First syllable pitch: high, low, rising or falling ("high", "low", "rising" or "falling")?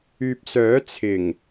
low